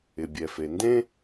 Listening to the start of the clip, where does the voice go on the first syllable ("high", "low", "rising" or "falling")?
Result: low